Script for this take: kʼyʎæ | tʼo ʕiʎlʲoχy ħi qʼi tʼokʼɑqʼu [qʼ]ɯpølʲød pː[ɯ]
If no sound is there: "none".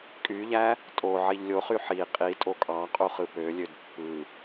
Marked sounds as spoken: χ, ɯ

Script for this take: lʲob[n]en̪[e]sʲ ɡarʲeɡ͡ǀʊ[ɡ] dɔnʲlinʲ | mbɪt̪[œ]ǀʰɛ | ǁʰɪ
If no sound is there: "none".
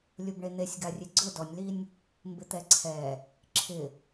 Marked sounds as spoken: ɳ, e, none, ɛ

